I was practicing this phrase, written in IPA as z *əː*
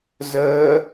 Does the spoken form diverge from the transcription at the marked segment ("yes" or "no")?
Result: no